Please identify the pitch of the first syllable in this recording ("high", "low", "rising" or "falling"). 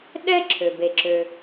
high